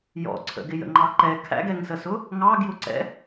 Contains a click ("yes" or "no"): yes